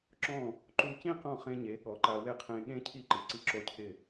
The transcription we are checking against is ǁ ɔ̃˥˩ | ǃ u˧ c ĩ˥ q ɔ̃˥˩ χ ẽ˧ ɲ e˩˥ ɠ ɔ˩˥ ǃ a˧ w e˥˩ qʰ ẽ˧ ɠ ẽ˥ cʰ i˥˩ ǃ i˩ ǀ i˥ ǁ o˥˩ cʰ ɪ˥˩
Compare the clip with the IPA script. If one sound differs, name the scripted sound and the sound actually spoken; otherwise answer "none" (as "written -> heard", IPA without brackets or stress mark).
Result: none